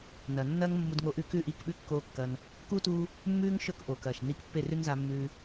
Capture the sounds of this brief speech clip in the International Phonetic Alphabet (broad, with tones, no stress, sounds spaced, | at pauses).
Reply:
n ɐ˨ nː ɐː˦ ŋ mː u˧ d ŋ oː˧ ʔ ʉ˧ k ʉ˦˨ ʔ iː˦˨ k ɓ ʉ˦ kː oː˦ kː ɐː˧ n | k uː˦ t uː˧ | mː ʉː˦ ŋ ʃ ɵ˦˨ k ʔ oː˨ k ɐː˨ ʃ n iː˧ k pː e˦˨ r ʉ˦ n z a˧ mː ʉː˧